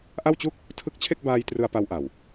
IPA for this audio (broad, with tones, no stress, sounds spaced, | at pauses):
ʔ a˥˩ w t͡ɕ u˥˩ k̚ | tʰ ɯ˦˥ k̚ t͡ɕʰ e˥˩ k̚ b aː˧ j t r ɯ˧ a̯ p a˧ w ʔ a˨˩ w